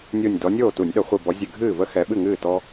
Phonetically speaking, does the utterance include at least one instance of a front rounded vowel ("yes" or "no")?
no